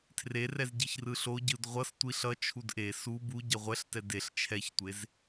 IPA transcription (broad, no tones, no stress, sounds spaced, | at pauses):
tʰ r e r ɛ z ɟ i ç r ɯ ɬ o ɟ ɯ d ʁʷ ʌ s tʷ i ɬ ʌ t͡ʃʰ u d ʔ e s u b u ɟ ʌ ʁʷ ɛ ɬ t ɛ d e ɬ t͡ʃʰ ɛ ç tʷ e z